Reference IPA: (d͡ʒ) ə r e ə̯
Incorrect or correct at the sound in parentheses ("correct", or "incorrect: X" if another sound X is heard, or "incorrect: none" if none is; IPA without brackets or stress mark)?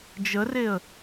correct